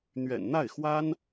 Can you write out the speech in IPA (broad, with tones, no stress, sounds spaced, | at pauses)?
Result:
n̪ ɥ ɛ̰˨˩ n n̪ a˥˩ ɪ̯ x w a˥ n